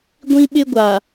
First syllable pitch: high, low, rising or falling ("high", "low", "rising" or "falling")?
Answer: high